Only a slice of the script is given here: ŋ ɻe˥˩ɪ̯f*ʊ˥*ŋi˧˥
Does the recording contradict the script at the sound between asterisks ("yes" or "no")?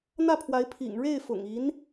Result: yes